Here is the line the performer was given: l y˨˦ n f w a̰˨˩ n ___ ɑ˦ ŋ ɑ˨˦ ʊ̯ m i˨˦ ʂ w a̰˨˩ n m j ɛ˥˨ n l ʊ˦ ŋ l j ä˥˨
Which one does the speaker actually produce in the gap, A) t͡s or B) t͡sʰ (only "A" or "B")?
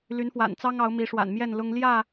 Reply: A